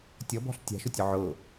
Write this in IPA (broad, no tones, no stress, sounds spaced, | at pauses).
tʲ ɔ b ɔ̤ ɬ tʲ a̤ ʃ ʊ tʲ ʊ ʕ ʊ